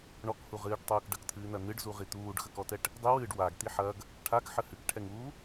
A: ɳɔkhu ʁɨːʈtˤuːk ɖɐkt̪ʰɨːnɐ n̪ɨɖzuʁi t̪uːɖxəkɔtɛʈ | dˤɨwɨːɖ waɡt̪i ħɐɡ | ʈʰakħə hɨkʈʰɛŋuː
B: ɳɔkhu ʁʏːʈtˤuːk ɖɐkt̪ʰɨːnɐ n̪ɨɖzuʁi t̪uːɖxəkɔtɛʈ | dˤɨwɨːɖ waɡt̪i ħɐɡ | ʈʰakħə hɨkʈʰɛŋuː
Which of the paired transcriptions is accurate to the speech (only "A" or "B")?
A